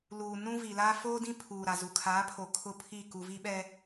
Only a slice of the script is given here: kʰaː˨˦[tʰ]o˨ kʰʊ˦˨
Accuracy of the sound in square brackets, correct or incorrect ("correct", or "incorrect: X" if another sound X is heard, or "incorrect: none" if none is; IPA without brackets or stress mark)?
incorrect: pʰ